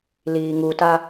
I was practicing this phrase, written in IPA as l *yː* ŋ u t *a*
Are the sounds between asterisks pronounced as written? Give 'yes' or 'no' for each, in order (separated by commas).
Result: no, yes